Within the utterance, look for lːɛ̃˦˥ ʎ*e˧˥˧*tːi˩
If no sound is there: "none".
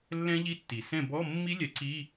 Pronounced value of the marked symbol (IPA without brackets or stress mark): i˧˥˧